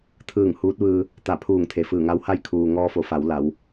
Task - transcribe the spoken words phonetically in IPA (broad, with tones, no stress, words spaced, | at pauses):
t̪ʰɯː˧˩ŋ huː˧˥t̚ʋɯː˧ | t̪a˧˩ pʰuː˧˩ŋ t̪ʰe˩fɯː˧˩ŋa˧˥w ha˥˨jkʰuː˩ ŋɔː˧fo˩˧fa˩˧w la˩˧w